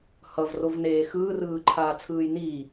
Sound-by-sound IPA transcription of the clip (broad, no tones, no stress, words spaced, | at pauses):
hʌvrovneː xɯːrɯːǃʰaːt͡sʰɯːj ni